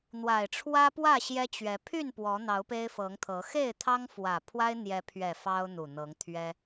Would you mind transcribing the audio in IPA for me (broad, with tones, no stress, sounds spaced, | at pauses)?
n̪ w a˨˩ ɪ̯ ʈ͡ʂʰ w ä˦ p w ä˥˨ ɕ j ɛ˦ t͡ɕ ɥ ɛ˨˦ pʰ y˥˨ n p w ɔ˨˦ n̪ ɑ˨˦ ʊ̯ p e˦ ɪ̯ f ɤ˨˦ ŋ t̪ʰ ɤ˨˦ x e˥˨ ɪ̯ t̪ʰ ɑ˦ ŋ f w ä˨˩ pʰ w a˦ ɪ̯ n̪ j ɛ˨˦ pʰ ɥ ɛ˨˩ f ɑ˦ ʊ̯ n̪ u˨˩ n̪ ɤ˨˦ ŋ t̪ʰ ɥ ɛ˦